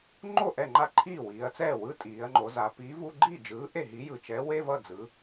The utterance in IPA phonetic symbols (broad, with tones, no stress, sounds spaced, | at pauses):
ŋ͡ǃ o˥˩ ʔ ɛ˥˩ ŋ͡ǃ a˥˩ ǃʰ iː˥˩ w iː˩˧ ɐ̯ t͡s ɛː˥˩ w ɯ˧˥˧ tʼ iː˩˧ ɐ̯ ŋ͡ǃ o˩˧ z a˩˧ p iː˨˥ v u˧˥˧ ɡ͡ǃ iː˥˩ d͡ʒ ɯː˨˥ ʔ e˥˩ ɦ i˨˥ j ɯ˩ t͡ʃ ɛ˨˥ w e˧˥˧ v ʌ˥˩ d͡z ɯ˩˧